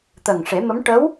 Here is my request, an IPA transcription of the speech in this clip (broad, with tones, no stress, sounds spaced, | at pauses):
t̪ əː˨˩ ŋ ʂ e˨˩˦ m ə˧˥ m ʈ ə˧˥ w